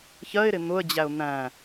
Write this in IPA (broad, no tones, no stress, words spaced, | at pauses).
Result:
çɜɪ̯ɾɪ n̪ʊə̯d͡ʑæʊ̯ n̪æ̃